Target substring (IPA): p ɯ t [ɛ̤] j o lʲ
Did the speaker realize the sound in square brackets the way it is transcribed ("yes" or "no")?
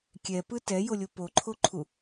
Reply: no